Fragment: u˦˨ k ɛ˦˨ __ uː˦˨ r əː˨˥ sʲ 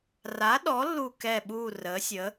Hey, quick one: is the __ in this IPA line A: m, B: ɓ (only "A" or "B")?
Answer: B